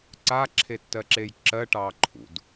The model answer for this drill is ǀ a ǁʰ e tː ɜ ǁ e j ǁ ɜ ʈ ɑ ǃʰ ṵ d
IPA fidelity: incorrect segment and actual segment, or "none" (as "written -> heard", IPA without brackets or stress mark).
none